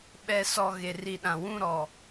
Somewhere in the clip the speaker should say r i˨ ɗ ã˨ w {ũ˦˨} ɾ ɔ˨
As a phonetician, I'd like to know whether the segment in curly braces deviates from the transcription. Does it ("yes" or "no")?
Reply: no